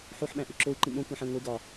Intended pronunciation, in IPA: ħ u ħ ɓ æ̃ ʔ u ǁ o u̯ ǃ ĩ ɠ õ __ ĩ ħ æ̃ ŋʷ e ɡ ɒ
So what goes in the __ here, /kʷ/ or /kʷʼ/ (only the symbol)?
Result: kʷ